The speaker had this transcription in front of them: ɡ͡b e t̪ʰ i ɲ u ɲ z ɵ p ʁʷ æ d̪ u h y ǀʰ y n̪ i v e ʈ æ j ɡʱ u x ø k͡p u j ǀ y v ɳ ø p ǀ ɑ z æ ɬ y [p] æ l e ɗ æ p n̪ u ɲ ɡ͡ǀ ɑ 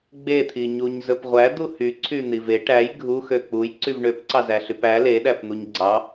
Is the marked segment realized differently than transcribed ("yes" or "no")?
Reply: no